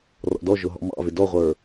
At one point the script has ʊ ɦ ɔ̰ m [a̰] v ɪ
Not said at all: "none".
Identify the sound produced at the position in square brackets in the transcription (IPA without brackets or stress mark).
ɑ̰